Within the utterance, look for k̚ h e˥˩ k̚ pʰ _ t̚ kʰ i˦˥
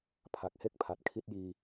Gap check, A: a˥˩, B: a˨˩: B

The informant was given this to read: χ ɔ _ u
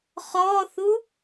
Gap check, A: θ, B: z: A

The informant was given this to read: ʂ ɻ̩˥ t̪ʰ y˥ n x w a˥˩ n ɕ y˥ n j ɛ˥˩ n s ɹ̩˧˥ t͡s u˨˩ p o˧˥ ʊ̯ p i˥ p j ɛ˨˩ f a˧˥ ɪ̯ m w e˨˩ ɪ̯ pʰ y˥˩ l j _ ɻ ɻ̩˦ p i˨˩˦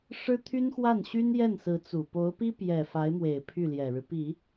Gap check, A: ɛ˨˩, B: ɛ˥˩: A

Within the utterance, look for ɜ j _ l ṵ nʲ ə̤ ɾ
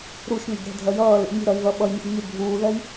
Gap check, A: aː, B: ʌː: B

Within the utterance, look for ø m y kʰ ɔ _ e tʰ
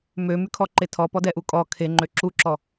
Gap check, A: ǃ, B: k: A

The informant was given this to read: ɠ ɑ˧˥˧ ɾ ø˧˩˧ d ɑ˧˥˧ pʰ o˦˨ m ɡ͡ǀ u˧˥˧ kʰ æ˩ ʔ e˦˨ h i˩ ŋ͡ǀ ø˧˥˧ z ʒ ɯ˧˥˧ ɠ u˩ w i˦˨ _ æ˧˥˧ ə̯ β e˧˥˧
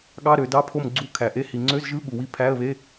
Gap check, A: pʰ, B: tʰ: A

